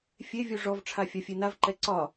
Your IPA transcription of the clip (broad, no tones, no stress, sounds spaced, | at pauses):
fʲ e vʲ u ʐ ɔ v ʈ͡ʂʰ a fʲ a fʲ e n a v ǃ ɛ ǀ ɒ